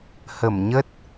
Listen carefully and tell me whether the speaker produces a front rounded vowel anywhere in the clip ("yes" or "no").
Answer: no